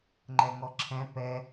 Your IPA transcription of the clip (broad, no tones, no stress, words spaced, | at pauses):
ŋ͡ǃɛŋɔǁʰɛ̃ pɛ